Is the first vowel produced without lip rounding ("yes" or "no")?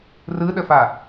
yes